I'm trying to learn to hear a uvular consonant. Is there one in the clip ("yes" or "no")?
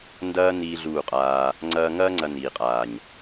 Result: yes